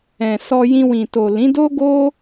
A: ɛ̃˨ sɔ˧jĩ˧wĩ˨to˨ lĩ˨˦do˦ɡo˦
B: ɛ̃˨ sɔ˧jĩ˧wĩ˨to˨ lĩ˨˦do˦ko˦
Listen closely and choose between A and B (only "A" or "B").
A